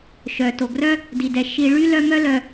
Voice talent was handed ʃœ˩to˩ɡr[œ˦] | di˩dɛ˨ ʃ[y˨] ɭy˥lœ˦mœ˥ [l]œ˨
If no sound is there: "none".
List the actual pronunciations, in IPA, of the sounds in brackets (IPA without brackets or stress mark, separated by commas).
œ˥, i˨, l